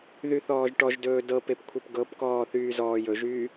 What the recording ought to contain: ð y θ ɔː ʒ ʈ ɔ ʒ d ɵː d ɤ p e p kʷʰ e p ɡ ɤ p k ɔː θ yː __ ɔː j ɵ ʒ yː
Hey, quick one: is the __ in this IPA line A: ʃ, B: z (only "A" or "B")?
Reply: B